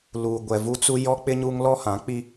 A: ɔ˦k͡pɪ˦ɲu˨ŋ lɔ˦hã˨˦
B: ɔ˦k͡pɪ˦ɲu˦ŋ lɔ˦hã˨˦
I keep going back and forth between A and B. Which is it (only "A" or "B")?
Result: B